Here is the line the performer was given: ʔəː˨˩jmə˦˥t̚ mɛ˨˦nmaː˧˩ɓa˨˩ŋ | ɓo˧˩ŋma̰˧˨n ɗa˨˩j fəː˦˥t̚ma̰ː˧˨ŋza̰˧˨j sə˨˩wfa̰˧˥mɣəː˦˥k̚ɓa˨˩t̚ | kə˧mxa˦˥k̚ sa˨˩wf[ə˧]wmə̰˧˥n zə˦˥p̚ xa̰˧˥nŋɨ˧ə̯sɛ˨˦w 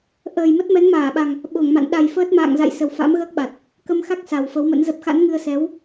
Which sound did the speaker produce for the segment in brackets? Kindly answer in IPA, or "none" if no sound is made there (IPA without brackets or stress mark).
ə˨˦